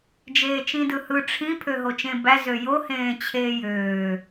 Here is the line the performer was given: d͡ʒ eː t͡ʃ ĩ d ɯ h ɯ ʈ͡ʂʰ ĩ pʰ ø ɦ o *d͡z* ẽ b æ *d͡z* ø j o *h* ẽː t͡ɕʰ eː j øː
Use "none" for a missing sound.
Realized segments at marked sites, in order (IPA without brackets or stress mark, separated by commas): t͡ʃ, z, h